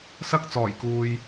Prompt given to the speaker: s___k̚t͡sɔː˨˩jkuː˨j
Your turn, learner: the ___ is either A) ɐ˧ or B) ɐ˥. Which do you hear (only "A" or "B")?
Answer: B